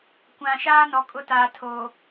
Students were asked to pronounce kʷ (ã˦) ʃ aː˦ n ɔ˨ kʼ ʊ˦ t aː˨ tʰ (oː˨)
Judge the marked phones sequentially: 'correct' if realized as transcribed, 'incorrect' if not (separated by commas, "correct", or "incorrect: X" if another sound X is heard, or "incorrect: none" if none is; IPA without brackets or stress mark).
incorrect: ã˨, correct